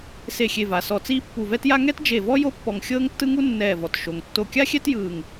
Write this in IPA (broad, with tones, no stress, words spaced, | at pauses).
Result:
se˧˩xʲe˧˩va˩ sɔ˧˩t͡siː˥ pːu˧˩vɛ˥tja˥ ŋɛ˥td͡ʒe˧˩vɔ˥ jo˥pːɔ˧˩ŋ xʲɤː˥ŋtːɯ˥ŋu˥ nːɛː˧˩vɔ˩t ʃo˩ŋ tːo˧˩kʲa˥xʲɛ˥t jɯː˧˩ŋ